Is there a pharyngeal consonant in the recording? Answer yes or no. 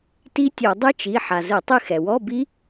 yes